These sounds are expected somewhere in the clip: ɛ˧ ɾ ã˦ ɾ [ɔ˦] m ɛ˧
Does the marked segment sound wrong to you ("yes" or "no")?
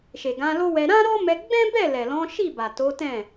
no